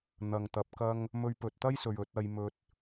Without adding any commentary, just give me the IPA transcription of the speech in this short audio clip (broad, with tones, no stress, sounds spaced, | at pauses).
n̪ ɐ˨ ŋ t̪ ɐ˨ p̚ k ɐ˧ ŋ | m ɵ˧ ɥ p ɵ˨ t̚ t̪ ɐ˥ j s ɵ˨ ɥ ɵ˧ t̚ ɐ˨˧ j m ɵ˧ t̚